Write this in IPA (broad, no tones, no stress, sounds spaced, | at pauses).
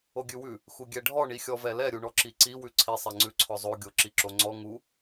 o ɡʲ ʉ w ʉ | x u ɡʲ ɛ ɖʱ ɔ ɳ i xʲ ɔ v ɛ l ɛ ɾʲ u ɳ ɔ ǁ i ǀ i w ʉ ǀʰ i sˤ ɛ ŋ͡ǀ ʉ ǀʰ ɔ zˤ o ɡʲ o ǁ i ǁ o ŋ͡ǀ ɔ ŋ u